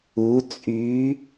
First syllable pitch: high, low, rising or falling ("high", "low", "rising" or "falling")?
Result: rising